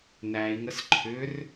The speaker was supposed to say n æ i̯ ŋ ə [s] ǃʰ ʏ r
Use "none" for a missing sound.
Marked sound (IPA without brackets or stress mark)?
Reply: s